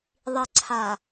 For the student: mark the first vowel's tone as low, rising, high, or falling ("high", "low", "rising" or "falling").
low